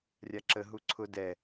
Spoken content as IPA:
rʲ a ǁ ə ɦ u ǀʰ ʊ d ɛ

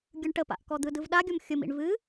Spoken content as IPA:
ɡʲ ɯ ɳ ʈ ə p a̰ ʔ k ɔ d̪ ɯ d ɯ v ɗ a ɡʲ ɔ m xʲ ʊ m ḭ ɳ v ɨ

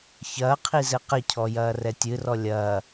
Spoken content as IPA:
ç ɐː qʰ i z ɘ q ɘ cʰ ɔ j ɐː r ɛ tʲ ɨ r ɔ lʲ ɐː

